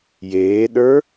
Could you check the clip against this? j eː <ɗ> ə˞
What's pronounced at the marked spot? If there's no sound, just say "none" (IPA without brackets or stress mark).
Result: ɗ